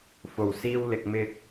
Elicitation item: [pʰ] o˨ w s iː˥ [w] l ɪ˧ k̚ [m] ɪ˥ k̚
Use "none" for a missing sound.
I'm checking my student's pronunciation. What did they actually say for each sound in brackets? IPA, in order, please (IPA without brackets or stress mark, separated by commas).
f, w, m